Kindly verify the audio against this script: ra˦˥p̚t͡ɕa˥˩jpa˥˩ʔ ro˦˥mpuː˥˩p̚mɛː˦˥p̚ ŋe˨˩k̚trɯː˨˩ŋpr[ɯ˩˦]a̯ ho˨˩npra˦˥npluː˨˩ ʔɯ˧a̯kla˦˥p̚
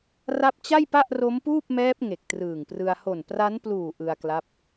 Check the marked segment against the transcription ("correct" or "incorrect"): incorrect